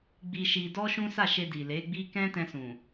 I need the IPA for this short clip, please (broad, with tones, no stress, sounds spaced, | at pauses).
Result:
ɡ͡b i˧ ʃ i˧ d ɔ˦ ʃ ũ˦ s a˦˨ ʃ e˧ d i˨ l e˨˦ ɡ͡b i˦ k ɛ̃˦ t ɛ̃˧ s ũ˨